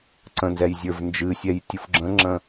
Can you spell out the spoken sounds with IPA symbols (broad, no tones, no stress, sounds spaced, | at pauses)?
ǀ ə̃ n z ɛ j zʲ ə˞ v n d͡ʒ ɨ sʲ ɛ j tʲ u f ɡ͡ǁ ə̃ ŋ͡ǁ ə̃